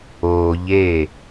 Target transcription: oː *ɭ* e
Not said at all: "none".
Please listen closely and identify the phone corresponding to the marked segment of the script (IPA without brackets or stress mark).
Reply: ʎ